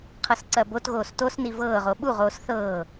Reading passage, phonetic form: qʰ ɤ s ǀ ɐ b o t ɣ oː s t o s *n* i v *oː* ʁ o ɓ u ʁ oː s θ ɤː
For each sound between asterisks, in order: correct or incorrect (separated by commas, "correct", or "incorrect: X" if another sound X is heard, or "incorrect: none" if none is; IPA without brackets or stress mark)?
correct, incorrect: ɤː